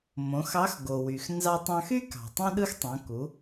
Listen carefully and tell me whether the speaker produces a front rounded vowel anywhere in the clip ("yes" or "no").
yes